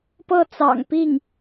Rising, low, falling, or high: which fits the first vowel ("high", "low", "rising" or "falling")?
falling